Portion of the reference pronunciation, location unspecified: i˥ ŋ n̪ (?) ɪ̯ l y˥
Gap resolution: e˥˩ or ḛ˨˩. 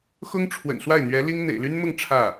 ḛ˨˩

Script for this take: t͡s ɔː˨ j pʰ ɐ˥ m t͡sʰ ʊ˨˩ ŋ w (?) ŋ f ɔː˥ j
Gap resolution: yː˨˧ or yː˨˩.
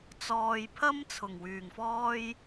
yː˨˩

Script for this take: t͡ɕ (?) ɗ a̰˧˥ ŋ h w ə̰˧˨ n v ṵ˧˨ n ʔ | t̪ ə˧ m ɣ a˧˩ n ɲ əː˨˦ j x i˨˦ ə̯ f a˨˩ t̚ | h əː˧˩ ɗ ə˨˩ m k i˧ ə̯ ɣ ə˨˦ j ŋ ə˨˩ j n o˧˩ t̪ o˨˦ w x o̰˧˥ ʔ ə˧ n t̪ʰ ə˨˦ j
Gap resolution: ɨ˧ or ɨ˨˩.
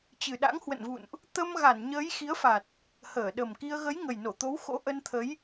ɨ˨˩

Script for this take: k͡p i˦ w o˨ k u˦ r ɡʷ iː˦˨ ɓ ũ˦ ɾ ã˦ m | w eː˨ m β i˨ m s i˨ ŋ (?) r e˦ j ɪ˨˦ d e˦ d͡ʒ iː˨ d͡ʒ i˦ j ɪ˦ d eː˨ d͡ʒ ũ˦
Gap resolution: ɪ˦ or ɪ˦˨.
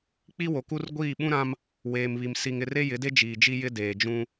ɪ˦˨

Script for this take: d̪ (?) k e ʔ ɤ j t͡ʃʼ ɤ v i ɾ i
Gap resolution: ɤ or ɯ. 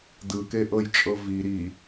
ɯ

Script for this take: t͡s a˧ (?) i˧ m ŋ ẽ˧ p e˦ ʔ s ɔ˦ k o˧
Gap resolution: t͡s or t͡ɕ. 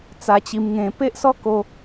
t͡ɕ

